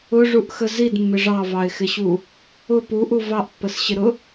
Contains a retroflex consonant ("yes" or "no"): yes